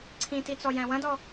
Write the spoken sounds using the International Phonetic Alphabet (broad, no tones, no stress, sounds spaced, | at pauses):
ǀʰ ĩ t i t͡s ɔ j æ̃ w ɐ̃ d ɔ